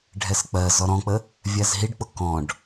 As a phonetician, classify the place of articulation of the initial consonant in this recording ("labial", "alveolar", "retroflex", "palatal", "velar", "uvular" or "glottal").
retroflex